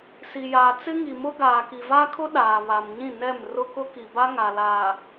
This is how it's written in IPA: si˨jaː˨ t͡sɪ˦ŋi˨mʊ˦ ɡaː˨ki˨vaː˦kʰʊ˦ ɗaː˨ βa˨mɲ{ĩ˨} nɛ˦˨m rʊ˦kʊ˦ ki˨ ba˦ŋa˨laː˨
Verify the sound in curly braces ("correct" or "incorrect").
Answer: incorrect